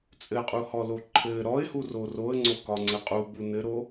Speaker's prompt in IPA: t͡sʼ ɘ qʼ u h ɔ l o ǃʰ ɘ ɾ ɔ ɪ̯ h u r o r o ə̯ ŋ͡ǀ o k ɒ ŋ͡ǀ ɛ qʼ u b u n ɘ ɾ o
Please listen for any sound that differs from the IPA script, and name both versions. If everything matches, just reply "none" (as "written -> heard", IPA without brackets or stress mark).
ɛ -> ɘ